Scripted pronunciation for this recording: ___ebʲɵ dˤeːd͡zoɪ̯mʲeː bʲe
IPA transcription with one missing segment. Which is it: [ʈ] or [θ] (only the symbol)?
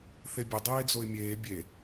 θ